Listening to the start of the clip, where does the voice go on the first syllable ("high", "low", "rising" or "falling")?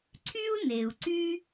high